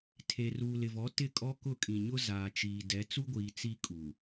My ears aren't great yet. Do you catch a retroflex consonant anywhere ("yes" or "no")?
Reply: no